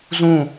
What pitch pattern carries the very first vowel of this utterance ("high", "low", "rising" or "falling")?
falling